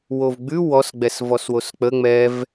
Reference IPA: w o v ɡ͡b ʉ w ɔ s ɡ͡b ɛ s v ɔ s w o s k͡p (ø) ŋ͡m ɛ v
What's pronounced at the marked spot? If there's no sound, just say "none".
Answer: ə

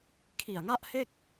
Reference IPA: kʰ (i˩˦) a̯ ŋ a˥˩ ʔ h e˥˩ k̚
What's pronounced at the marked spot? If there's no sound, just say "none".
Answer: i˨˩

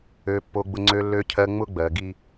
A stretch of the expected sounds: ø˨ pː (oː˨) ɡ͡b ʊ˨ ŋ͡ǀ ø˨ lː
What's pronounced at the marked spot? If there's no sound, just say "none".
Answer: o˨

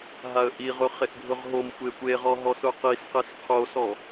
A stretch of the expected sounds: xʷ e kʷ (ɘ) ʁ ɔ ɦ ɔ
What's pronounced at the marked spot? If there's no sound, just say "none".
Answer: e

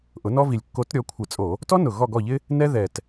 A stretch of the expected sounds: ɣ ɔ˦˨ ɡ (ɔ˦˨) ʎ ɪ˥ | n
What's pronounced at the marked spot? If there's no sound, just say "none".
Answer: ɔ˦˨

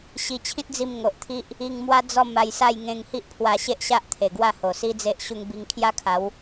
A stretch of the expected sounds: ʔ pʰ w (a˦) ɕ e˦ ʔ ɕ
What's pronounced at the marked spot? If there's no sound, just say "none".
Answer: a˧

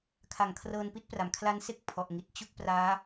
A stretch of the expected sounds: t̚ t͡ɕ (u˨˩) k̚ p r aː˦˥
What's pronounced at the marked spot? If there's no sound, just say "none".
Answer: u˥˩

